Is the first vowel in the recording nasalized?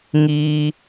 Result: no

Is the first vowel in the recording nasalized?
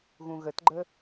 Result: yes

